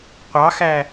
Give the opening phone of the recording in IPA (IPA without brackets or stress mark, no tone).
qʷ